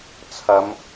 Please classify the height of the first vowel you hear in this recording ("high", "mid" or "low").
low